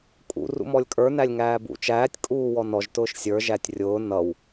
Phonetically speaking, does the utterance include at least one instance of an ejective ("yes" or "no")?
yes